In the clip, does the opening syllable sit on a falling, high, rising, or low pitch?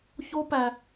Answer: high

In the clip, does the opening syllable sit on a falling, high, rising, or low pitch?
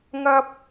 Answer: high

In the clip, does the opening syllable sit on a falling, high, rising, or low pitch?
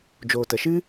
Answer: low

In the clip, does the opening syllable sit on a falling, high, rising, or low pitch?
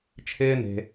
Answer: high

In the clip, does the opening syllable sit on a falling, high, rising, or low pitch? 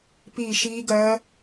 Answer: falling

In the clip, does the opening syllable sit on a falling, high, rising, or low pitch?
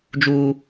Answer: high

